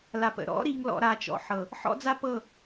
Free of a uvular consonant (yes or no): yes